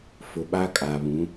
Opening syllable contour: low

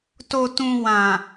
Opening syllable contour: low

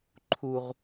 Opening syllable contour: high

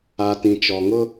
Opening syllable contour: low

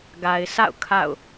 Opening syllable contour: low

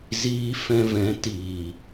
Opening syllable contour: high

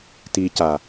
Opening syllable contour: low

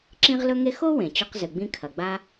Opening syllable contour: high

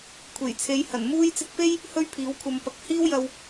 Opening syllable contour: low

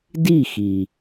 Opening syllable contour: falling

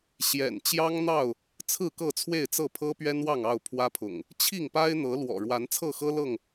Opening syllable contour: low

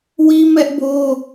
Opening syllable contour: high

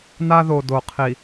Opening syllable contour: high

